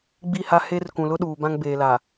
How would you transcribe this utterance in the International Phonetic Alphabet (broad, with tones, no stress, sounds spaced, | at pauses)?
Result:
ɡ͡b i˦˨ h a˦ h e˦ r k ũ˨ l ʊ˦ ɗ uː˨ b ã˦ ŋ b eː˨ l aː˨